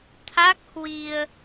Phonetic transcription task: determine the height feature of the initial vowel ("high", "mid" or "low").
low